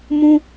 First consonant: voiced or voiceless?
voiced